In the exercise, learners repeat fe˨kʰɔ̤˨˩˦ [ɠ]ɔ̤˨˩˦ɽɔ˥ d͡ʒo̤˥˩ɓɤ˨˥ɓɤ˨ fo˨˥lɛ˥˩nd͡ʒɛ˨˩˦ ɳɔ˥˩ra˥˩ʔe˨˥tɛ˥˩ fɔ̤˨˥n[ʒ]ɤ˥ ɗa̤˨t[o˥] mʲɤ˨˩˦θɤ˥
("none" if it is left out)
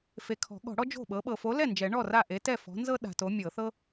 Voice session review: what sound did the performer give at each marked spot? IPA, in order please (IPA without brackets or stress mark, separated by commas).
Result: ɠ, z, o˨˥